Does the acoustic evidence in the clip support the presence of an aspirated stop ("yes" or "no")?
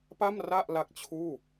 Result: yes